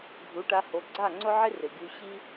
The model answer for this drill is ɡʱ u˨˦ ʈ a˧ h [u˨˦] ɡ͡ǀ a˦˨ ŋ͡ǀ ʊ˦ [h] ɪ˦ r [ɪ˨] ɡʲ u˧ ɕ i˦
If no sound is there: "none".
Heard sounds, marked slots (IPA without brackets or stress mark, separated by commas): o˨˦, ʕ, ɪ˨